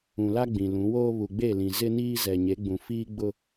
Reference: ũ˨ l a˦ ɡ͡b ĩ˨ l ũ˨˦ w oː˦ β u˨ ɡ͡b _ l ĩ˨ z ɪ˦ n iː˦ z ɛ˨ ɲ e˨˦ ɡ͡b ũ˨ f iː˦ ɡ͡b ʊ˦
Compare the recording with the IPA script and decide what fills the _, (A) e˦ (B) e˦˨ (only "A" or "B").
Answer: B